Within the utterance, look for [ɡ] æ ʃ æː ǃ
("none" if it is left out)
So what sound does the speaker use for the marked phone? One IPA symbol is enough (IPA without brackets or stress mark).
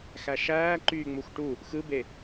x